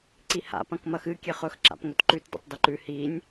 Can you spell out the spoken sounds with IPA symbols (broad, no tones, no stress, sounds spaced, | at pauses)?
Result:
ǀ i h a̰ p ɐ̃ k m ɐ x ɨ kʲ e χ ɵ x ǁ a̰ p ŋ ɵ t ǃ ʉ t d ḭ tˤ d i ǃ ʉ h i nʲ